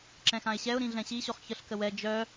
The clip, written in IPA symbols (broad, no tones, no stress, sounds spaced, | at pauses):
ǁ ɛ̃ x ã ɪ̯ ɕ ɛ ʊ̯ ɾ ĩ ɮ ɛ̃ ɕ i ɕ o χ ç ə ɬ k ə w ɛ d͡ʒ œ